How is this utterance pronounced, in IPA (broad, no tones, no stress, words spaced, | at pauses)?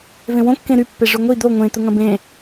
vẽwõ kːẽɾypːe ʐʊŋʷi d̪o ŋʷẽt̪ʊ ŋɐ̃bẽ